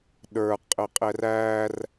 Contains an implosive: yes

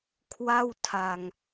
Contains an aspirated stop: yes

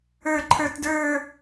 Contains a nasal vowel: no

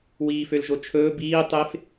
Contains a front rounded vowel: yes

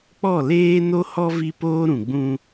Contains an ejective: no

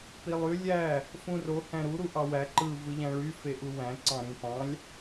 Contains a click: yes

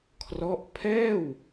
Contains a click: no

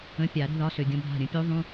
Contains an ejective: no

